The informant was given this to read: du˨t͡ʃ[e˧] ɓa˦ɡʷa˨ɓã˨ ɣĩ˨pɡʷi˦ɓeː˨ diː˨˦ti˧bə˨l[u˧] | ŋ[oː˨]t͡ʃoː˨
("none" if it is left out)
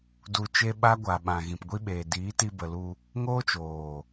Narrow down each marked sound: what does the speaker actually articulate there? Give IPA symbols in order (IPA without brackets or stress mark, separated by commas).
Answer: e˧, u˧, oː˦